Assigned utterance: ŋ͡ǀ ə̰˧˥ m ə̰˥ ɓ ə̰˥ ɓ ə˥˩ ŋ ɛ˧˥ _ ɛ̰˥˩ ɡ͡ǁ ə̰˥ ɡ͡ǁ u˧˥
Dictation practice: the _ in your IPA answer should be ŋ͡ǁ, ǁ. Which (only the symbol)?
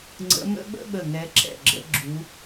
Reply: ǁ